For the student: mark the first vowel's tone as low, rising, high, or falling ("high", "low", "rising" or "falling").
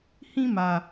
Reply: high